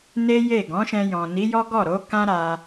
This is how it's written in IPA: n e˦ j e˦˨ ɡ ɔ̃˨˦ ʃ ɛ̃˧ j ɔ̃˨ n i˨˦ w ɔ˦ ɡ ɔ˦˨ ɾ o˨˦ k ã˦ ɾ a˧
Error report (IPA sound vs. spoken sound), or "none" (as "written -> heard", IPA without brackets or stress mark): w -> j